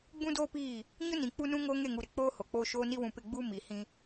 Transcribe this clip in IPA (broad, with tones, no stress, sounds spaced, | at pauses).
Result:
ɡ͡b ũ˦ d oː˦ p iː˦˨ | ɲ ʊ˦ n ĩ˨ k͡p u˦ n ũ˦ ŋ oː˦ ŋ e˦˨ ŋ u˨ ɾ ɪ˨ k͡p oː˦ h o˨ k͡p oː˦ ʃ oː˦ n i˦ w ũ˨ p ɪ˦˨ ɡ͡b uː˦ m i˨ h ĩ˦